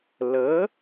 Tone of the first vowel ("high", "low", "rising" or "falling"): rising